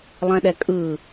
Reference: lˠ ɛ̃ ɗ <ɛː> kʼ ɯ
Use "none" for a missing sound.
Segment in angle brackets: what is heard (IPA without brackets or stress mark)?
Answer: ɛ